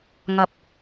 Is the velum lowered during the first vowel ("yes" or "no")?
no